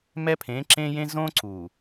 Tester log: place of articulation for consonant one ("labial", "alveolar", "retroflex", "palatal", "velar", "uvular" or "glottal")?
labial